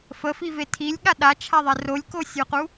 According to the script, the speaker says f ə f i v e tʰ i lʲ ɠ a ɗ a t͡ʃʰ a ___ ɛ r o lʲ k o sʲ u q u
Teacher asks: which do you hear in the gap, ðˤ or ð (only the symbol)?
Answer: ðˤ